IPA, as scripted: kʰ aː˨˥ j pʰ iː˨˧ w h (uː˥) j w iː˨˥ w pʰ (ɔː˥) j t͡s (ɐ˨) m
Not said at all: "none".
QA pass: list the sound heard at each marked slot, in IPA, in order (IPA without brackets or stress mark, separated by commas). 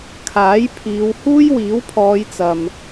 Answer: uː˥, ɔː˨˧, ɐ˨